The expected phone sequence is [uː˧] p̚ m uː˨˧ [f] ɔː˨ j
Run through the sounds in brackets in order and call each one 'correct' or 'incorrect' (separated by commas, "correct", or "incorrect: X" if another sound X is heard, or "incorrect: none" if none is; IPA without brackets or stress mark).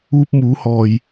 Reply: correct, incorrect: h